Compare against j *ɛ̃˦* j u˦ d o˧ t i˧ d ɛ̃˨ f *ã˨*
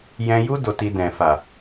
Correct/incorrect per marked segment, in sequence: incorrect: ɛ̃˧, incorrect: a˨

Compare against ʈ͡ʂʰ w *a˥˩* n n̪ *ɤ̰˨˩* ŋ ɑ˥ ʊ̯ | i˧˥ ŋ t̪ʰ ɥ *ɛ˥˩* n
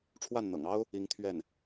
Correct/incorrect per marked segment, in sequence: correct, correct, correct

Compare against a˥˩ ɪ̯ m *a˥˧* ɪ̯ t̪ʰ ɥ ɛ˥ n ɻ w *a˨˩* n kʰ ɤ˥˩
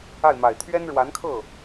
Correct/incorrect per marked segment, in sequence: incorrect: a˨˩, incorrect: a˧˥

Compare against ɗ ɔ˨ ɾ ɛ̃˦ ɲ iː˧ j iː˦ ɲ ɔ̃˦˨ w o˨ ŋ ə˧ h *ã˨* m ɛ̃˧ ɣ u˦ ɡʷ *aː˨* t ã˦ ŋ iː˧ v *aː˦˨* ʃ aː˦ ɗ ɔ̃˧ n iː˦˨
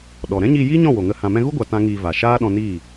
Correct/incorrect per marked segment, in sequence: correct, incorrect: a˨, incorrect: aː˨

